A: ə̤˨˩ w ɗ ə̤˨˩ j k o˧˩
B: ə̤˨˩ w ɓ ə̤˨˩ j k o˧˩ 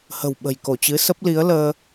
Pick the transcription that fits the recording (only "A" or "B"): B